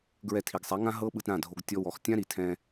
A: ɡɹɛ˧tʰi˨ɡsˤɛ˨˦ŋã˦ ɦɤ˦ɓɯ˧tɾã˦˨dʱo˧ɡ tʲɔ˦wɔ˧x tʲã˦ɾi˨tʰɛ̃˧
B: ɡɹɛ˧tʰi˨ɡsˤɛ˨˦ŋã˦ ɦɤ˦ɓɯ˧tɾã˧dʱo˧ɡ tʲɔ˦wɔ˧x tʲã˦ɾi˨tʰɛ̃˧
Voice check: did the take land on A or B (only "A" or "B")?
A